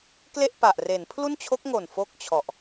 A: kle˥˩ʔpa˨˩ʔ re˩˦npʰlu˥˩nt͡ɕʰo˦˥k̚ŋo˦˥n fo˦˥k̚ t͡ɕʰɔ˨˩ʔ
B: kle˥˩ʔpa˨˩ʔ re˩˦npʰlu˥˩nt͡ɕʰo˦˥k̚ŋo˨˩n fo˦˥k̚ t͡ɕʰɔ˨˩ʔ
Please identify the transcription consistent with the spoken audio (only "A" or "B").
B